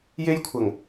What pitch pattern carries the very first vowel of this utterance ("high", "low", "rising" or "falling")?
high